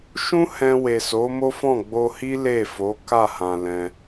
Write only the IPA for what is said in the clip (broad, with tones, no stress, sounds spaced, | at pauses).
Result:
ʃ ũ˦ h ɛ̃˧ w e˨ s o˨˦ m o˦ f ɔ̃˦˨ ɡ͡b o˧ h i˦ l e˦˨ f o˨˦ k a˦˨ h ã˨ l ɛ̃˧